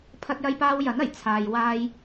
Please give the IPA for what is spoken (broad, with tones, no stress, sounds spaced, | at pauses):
pʰ ɐ˧ t̚ j ɐ˧ j p aː˧ w j ɐ˨˥ n ɐ˨˩ j t͡sʰ aː˧ j w aː˧ j